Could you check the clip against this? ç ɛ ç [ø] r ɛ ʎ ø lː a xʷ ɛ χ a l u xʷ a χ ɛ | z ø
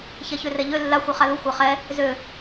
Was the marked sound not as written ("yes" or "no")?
no